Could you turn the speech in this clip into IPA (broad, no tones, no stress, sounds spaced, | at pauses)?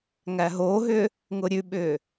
ŋ æ ɦ oː ɦ ʏ | ŋ ʊ ɾʲ ʉ ɓ ʏː